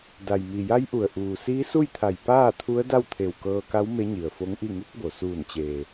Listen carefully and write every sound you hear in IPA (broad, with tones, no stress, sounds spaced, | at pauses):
d a˩ j m i˩ j a˧˥ j ʔ u˩ ə̯ ʔ uː˩ s iː˧˥ s u˥˨ j t̪ʰ a˧˩ j p aː˥˨ t̪ʰ u˧˥ ə̯ d a˥˨ w t̪ʰ e˧˩ w k ɤː˧ k a˧˥ w m e˧˥ ɲ i˩ ə̯ f o˧˥ ŋ ʔ i˥˨ ŋ u˧˥ k̚ b o˩ s uː˧˩ n t͡ɕ eː˩